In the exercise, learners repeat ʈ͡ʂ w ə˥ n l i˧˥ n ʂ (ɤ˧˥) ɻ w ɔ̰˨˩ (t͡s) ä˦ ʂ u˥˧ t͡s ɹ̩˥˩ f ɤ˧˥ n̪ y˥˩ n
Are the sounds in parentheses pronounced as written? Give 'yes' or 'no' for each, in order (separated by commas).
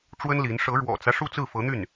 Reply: yes, yes